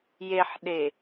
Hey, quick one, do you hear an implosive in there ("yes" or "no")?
yes